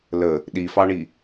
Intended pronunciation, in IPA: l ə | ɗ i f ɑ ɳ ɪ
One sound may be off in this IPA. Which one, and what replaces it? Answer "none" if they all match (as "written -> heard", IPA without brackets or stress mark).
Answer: ɪ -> i